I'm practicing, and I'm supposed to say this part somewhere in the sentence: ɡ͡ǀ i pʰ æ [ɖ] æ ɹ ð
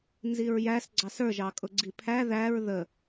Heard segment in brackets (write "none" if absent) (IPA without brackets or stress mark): ð